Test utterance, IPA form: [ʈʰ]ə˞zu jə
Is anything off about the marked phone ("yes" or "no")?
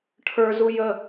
no